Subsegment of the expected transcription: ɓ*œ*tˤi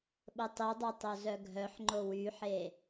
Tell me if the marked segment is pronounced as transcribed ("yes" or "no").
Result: no